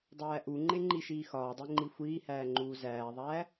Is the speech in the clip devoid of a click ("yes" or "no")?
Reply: no